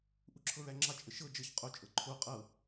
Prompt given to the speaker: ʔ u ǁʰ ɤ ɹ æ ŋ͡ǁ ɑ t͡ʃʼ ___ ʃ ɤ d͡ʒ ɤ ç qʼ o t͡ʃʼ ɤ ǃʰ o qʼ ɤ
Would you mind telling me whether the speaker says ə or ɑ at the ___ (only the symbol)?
ə